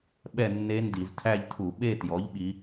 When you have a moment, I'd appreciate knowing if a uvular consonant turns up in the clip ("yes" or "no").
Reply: no